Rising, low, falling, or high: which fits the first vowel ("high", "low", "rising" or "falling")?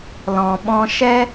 low